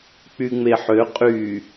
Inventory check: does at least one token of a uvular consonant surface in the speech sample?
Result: yes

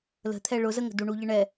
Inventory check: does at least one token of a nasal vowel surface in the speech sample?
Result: no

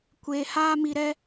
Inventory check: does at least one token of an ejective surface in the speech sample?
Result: no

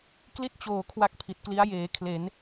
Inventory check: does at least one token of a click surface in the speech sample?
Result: no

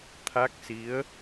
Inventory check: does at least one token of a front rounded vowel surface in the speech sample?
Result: no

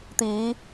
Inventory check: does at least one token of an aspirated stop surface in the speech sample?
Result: no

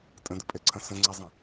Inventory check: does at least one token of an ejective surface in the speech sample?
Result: yes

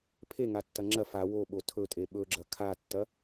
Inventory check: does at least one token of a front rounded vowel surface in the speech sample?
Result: no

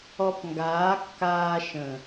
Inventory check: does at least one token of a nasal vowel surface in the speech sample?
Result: yes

